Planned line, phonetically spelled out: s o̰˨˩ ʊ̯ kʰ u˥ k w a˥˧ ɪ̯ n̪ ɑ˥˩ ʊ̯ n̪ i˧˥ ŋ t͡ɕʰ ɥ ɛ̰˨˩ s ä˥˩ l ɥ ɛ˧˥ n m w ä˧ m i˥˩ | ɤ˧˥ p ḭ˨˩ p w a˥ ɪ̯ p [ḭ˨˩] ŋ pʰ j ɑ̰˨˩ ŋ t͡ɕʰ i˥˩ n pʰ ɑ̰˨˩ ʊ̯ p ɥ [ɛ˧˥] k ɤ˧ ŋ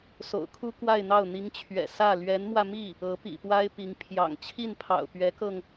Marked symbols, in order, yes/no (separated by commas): no, yes